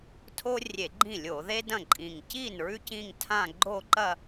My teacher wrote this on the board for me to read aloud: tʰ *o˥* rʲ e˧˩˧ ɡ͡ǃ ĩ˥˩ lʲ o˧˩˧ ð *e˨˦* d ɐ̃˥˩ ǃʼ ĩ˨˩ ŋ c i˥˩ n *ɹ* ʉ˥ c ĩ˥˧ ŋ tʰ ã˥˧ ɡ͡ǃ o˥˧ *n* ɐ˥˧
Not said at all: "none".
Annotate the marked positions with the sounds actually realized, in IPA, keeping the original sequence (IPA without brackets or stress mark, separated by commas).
o˥, e˥, ɹ, ǃ